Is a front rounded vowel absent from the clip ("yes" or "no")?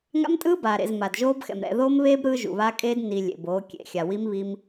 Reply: yes